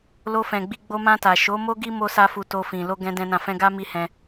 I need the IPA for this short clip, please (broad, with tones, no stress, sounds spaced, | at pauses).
l o˧ f ɛ̃˨ ɡ͡b i˧ ɡ͡b o˧ m ã˧ t a˨ ʃ o˨˦ m o˦ ɡ i˦ m o˦ s a˦ f u˧ t o˧ f ĩ˨ l o˧ ɡ ɛ̃˦ d ɛ̃˦ n ã˦˨ f ɛ̃˧ ɡ a˦ m i˦ h ɛ̃˧